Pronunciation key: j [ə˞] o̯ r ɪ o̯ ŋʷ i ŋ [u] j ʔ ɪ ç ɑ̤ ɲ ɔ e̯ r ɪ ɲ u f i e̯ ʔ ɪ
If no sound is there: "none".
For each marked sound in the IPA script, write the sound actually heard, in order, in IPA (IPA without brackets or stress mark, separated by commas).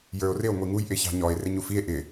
ə˞, u